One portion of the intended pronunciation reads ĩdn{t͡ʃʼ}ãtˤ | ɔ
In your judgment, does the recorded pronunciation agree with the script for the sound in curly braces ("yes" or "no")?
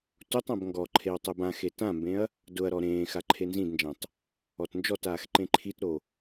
no